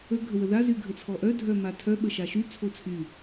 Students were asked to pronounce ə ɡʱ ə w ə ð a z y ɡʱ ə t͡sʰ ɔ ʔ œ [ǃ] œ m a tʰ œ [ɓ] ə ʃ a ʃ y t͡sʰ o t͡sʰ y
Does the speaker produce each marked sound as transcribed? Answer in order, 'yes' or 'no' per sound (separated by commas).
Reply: no, yes